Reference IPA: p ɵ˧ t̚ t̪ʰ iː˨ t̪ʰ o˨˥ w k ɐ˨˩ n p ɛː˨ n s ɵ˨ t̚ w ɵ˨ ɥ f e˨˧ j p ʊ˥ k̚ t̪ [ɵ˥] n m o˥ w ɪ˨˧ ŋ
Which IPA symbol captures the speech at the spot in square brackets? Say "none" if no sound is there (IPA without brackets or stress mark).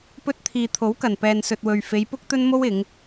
ɵ˥